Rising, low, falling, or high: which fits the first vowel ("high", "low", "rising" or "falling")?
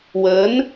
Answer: rising